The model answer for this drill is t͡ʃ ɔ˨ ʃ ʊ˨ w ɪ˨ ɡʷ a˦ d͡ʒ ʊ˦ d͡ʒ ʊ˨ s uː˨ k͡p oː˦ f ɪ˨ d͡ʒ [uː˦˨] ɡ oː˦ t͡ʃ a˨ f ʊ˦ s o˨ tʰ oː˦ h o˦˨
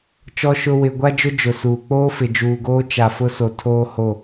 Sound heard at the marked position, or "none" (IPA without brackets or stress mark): uː˨